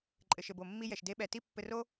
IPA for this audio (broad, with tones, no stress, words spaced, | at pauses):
ǃʼɘ˩ʃɘ˩bo˩mːi˧ jɛ˩ʃde˧˥ɓɛ˩˧ ti˥ pːɘ˧ro˥